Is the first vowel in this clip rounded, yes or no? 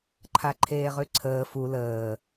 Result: no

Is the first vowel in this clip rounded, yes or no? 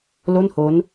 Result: yes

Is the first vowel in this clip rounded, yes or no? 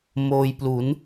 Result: yes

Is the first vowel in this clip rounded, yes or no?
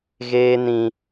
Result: no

